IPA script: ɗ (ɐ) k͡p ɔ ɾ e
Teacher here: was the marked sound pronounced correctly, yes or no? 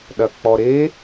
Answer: yes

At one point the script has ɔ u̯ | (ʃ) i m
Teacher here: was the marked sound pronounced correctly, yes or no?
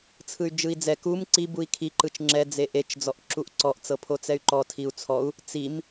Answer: no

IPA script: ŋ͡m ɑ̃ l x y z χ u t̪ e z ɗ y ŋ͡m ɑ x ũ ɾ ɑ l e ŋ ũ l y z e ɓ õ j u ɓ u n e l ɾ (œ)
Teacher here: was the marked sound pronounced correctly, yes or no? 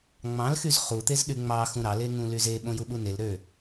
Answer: no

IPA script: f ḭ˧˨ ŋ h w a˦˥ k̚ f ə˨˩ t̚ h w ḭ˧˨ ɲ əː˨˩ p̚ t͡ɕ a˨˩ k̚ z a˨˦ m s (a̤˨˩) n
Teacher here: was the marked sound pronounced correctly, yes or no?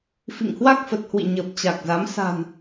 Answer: yes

